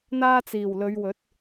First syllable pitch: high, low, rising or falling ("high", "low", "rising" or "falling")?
high